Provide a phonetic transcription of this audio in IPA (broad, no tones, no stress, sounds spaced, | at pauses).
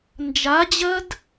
n d͡ʒ a d͡ʑ ɜ d